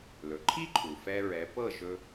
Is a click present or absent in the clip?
present